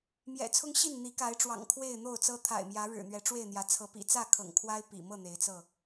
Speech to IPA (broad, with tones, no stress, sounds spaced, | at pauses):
m j ɛ̰˨˩ t͡sʰ ʊ˦ ŋ ɕ i˥˨ n n̪ i˨˦ k a˨˦ ɪ̯ ʈ͡ʂ w ɑ̰˨˩ ŋ kʰ w e˥˨ ɪ̯ n̪ o˥˨ ʊ̯ t͡s ɤ˦ t̪ʰ a̰˨˩ ɪ̯ m j ä˨˦ ɻ ɻ̩˨˩ n̪ ɥ ɛ˨˦ ʈ͡ʂ w e˥˨ ɪ̯ n̪ j ä˨˦ t͡sʰ ɤ˨˦ p ḭ˨˩ t͡s ä˥˨ kʰ ɤ̰˨˩ ŋ kʰ w a˦ ɪ̯ p ḭ˨˩ m ɤ˥˨ n̪ e˨˦ ɪ̯ t͡s ɤ˥˨